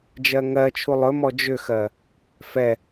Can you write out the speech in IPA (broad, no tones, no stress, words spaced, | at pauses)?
d͡ʒɜŋɜt͡ʃʰu lˠɵmɔ d͡ʒʏxɜ | fɛ